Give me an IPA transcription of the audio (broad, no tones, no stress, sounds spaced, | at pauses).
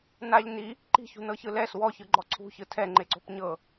n a ʎ n i | ǃ i̤ ç ṳ n ɤ ç ɯ l ɛ s w ɔ ç ɯ ɡ͡ǃ ɔ ǀʰ ṳ ç ɯ tʰ ɛ ŋ͡ǃ e ǀ o̤ p ɲ ɤ